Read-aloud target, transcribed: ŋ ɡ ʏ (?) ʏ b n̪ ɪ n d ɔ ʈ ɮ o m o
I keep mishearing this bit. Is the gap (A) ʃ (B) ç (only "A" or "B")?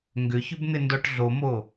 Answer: B